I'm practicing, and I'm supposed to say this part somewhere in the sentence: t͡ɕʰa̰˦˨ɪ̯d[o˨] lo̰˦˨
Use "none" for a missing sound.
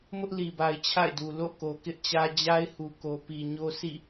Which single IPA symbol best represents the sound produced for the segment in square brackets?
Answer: u˨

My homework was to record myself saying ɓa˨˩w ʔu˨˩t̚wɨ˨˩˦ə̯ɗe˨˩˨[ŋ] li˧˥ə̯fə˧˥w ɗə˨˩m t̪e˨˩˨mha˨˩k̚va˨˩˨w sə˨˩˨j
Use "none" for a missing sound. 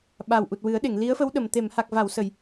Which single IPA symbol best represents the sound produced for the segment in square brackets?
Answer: ŋ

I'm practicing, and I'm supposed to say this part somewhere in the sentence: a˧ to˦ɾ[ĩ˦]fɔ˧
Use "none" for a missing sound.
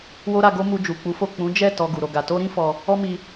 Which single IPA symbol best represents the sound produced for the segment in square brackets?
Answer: ĩ˦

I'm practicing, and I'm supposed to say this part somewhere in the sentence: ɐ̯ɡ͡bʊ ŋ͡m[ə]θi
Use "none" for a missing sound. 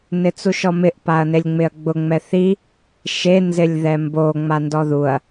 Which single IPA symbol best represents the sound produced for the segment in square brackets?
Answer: ɛ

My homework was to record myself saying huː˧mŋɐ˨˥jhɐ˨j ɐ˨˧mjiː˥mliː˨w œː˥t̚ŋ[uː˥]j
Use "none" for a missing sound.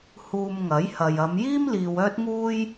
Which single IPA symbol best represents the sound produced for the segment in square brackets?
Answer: uː˥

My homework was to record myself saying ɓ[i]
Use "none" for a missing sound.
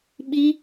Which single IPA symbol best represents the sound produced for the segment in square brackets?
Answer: i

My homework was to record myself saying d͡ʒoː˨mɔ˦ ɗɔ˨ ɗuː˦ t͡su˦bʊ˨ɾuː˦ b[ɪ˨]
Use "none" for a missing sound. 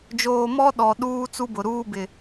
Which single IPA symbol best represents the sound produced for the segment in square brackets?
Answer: ɪ˨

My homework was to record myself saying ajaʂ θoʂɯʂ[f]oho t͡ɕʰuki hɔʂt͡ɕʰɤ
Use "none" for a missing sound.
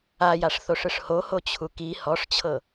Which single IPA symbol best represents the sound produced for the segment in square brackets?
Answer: h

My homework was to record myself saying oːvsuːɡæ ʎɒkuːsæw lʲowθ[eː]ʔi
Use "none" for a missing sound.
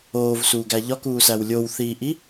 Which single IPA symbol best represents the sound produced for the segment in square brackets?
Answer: iː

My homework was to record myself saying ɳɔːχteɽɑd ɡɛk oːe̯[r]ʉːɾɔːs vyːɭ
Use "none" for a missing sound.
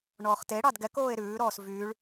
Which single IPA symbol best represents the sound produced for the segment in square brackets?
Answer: ɾ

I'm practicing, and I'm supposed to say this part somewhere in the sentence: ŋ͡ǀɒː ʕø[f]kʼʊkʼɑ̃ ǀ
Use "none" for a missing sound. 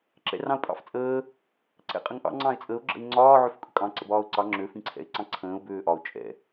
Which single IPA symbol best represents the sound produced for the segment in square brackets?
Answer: f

